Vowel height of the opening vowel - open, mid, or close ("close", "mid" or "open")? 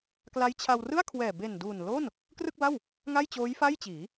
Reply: open